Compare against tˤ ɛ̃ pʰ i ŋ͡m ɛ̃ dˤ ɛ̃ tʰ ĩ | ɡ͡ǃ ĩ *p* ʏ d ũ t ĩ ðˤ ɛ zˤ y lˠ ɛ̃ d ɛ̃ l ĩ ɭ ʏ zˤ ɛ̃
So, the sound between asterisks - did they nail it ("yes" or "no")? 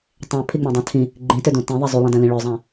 no